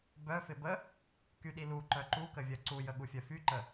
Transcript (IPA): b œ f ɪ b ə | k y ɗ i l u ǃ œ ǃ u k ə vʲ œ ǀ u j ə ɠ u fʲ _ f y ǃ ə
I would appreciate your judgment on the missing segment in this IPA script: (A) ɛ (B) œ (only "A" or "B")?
B